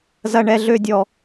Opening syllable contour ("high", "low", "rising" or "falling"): high